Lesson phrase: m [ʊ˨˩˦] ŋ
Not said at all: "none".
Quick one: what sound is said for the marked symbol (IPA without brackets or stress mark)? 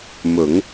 ʊ˨˩˦